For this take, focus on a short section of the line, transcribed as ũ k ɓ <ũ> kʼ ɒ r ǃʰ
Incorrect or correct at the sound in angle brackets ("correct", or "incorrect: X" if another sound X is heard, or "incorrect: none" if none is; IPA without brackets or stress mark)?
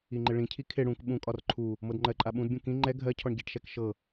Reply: correct